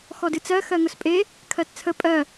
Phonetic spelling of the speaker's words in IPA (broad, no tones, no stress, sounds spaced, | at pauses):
x ɔ d ɨ t͡s ɜ x ɜ ŋ ʊ s pʼ e | kʰ ɜ t t͡sʰ ə pʼ ɜ